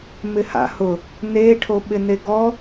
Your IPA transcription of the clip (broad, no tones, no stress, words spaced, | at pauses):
mɪha̰hʊ | neʈʰo ɓɪneɡɔ